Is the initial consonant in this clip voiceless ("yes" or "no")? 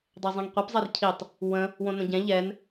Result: no